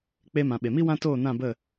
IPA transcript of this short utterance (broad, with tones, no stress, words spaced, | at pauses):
k͡pe˧mã˨ ɓe˨mi˦wã˦toː˦˨ nã˦˨bə˦˨